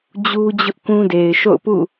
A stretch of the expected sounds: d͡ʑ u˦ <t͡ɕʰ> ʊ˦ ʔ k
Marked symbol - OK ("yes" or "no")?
no